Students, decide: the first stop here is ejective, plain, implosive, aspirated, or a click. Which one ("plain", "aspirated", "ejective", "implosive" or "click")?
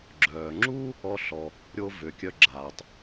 click